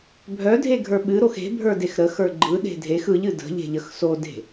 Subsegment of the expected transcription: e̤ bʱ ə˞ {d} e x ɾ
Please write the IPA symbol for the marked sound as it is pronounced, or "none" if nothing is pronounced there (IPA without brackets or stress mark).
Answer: d